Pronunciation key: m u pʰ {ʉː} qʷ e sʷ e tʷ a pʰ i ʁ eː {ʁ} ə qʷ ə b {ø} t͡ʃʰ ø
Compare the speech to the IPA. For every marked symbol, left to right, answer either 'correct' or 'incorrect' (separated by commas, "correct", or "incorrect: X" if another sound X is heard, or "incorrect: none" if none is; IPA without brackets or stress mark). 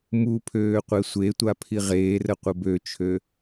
incorrect: øː, incorrect: r, correct